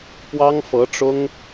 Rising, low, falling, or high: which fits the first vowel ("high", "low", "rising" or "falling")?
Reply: high